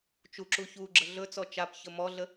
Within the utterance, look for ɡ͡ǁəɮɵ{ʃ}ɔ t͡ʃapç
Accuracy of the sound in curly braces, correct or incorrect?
incorrect